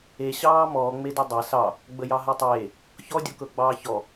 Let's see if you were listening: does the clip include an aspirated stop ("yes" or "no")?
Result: no